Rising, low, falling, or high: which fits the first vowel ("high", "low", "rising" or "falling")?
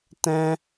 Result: high